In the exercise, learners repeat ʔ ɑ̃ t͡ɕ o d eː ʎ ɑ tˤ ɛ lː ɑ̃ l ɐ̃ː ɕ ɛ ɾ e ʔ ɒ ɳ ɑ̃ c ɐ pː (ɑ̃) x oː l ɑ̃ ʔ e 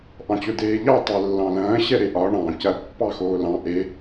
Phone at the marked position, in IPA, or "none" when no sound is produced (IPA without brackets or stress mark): ɑ